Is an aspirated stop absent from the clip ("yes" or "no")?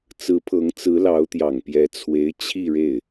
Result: no